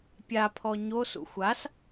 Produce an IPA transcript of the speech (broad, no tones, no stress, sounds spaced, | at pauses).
pʲ a pʰ ɔ ɲ o s ṵ xʷ a s